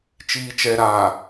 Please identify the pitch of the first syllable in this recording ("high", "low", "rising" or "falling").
low